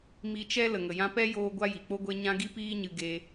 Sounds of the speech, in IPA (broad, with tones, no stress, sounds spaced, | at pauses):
m i˧ t͡ʃ ɛ˦ l ə˨ ŋ ə˨ j ã˧ p ɛ˦ j oː˧ ɡʷ a˦ j i˨ k͡p o˦ ɡʷ e˦ ɲ ã˦ ɡ i˦ p iː˦ ɲ ɨ˧ ɡ e˦